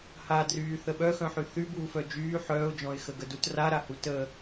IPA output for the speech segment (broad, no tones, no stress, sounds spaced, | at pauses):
h a d r yː θ ə ɓ œ x œ̃ ħ y θ y b uː f œ d͡ʒ yː ħ œː ʊ̯ d͡ʒ ɔ̃ ɪ̯ x ə ɡ ə d u t r a ɾ a h u t ə